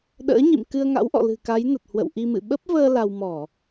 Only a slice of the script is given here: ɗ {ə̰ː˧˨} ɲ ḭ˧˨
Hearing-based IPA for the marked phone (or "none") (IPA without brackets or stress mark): ə̰ː˧˥